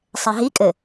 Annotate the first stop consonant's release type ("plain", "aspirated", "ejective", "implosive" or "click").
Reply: ejective